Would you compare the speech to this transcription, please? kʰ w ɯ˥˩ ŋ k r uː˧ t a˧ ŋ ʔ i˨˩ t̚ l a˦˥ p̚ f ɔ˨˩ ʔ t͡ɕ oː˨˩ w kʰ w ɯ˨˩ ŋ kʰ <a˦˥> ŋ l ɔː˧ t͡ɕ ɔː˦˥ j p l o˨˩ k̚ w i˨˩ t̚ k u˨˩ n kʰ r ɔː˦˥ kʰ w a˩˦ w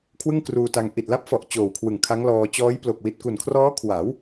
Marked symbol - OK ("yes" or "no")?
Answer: yes